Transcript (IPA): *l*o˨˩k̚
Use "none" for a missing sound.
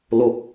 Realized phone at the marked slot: l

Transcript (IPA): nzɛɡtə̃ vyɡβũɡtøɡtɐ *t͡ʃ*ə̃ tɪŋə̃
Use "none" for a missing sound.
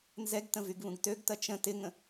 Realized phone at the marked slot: t͡ʃ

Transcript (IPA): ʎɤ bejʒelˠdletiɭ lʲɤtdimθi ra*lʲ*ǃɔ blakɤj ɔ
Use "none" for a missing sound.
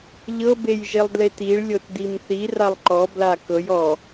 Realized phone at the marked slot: lˠ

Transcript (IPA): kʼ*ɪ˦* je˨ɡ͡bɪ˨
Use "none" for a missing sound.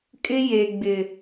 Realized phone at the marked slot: ɪ˦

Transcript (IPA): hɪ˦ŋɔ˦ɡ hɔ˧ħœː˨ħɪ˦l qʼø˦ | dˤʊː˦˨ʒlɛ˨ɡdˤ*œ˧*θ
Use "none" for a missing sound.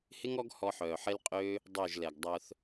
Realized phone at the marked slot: œ˧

